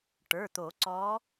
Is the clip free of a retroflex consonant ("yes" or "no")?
no